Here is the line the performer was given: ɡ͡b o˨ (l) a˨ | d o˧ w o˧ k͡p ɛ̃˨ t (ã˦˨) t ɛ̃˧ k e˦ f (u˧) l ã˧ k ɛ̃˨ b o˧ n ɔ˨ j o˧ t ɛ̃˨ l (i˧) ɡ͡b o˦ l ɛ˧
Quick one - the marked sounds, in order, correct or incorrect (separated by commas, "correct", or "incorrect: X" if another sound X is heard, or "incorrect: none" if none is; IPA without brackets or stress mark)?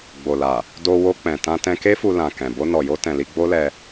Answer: correct, incorrect: ã˧, correct, correct